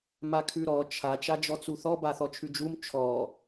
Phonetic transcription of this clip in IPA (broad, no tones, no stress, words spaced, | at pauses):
makʰʉɾɔ t͡ʃʰa t͡ʃad͡ʒɔt͡suθɔ baθɔt͡ʃʰʉd͡ʒum t͡ʃʰɔ